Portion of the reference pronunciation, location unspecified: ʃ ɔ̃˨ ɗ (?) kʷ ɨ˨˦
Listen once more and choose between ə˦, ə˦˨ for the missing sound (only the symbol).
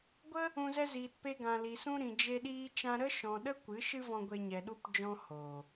ə˦